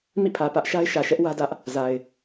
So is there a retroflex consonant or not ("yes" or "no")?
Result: no